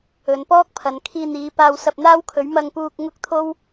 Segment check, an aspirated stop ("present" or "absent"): present